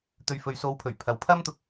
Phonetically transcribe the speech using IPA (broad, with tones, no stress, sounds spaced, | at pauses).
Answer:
t̪ ɵ˨ ɥ f ɵ˨ ɥ s o˨˧ w pʰ ɵ˨˩ ɥ pʰ ɐ˨ w pʰ ɐ˥ m t̪ ʊ˧ k̚